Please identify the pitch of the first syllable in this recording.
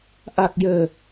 low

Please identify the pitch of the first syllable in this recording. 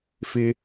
high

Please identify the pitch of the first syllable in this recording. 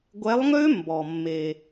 rising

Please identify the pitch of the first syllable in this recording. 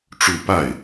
falling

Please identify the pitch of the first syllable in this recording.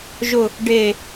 low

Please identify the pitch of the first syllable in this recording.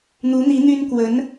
rising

